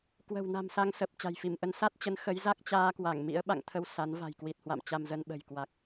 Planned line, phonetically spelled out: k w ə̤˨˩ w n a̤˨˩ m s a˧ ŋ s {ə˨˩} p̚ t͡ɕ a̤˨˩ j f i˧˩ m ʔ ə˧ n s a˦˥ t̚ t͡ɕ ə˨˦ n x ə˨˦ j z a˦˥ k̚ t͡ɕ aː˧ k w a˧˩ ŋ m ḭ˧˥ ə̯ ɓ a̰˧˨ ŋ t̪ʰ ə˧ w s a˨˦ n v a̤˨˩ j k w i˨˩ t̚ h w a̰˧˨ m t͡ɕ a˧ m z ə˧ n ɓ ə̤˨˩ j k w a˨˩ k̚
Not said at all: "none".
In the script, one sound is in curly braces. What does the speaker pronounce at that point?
ə˨˩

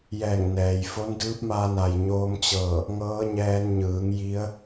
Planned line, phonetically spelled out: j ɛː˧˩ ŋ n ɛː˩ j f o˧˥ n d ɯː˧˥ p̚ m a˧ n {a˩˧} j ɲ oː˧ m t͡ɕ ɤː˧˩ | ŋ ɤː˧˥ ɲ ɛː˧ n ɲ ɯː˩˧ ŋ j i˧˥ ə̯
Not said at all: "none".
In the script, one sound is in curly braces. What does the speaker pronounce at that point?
a˩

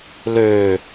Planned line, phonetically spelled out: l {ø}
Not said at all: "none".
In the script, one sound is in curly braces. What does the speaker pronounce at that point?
ø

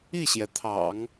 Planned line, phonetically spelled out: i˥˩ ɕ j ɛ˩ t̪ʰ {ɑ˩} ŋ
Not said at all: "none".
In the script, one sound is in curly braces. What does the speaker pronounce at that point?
ɑ̰˨˩˦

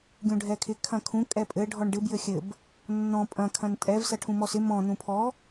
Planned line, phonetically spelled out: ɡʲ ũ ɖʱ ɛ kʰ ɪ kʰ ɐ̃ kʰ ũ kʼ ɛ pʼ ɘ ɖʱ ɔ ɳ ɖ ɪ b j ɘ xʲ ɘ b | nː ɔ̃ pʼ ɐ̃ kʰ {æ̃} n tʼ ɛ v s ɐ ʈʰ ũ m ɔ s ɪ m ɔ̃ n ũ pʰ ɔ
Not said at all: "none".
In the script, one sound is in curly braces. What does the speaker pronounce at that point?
ɐ̃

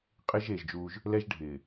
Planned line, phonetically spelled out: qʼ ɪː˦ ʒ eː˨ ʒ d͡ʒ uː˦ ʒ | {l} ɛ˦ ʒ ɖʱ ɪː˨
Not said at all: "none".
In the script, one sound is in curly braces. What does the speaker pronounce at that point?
l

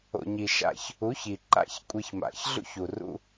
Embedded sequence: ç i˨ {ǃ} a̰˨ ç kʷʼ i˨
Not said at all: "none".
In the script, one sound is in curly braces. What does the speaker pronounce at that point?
ǃ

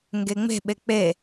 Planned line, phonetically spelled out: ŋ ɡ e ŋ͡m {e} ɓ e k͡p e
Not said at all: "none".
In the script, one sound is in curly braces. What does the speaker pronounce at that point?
e̤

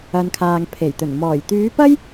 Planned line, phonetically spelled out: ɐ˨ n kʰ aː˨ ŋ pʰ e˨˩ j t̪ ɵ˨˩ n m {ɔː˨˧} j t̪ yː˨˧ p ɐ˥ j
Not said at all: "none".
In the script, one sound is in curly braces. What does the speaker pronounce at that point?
ɔː˨˩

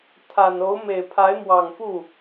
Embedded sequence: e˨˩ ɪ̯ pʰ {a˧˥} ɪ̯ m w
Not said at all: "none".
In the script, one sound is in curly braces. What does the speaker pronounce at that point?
a˧˥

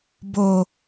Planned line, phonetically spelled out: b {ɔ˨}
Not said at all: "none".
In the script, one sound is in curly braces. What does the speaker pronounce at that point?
o˨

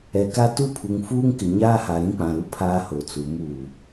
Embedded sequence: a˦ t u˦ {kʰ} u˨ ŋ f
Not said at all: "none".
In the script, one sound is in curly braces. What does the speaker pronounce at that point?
pʰ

